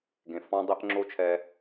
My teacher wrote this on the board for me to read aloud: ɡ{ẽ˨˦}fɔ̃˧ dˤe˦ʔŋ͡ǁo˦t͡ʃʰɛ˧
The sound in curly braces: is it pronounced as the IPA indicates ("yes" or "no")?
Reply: no